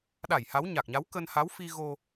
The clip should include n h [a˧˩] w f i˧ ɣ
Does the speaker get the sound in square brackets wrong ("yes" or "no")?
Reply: yes